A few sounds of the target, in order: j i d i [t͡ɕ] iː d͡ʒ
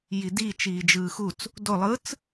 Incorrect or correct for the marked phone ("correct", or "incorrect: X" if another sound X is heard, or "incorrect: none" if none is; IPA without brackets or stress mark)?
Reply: incorrect: t͡ʃ